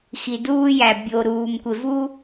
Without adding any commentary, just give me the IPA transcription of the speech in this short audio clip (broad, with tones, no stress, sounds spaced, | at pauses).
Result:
x i˨ d uː˦ j æ˨ bʲ o˨ ɾ uː˨ m kʷ e˨ v u˦